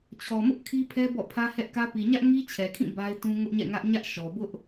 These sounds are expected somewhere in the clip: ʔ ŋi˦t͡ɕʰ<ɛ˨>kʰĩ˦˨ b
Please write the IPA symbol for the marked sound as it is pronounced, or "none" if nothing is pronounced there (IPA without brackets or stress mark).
ɛ˨